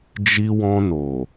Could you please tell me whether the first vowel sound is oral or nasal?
oral